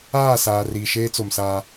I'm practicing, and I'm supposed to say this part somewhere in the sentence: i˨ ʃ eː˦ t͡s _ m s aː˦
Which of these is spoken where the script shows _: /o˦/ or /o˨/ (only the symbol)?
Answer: o˨